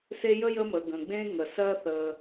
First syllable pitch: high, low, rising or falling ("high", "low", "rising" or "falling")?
high